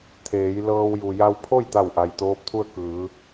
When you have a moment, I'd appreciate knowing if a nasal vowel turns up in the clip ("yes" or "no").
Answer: no